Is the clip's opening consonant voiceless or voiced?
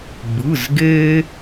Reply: voiced